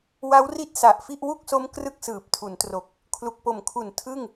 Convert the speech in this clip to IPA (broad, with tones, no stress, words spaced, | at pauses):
wa˦˥wri˥˩t̚ sa˨˩ʔfi˥˩ʔ wu˥˩k̚so˦˥m krɯ˥˩k̚sɯː˨˩p̚tʰu˩˦ntro˨˩k̚ | kʰlu˨˩k̚po˨˩mkʰu˨˩n tʰɯ˥˩ŋ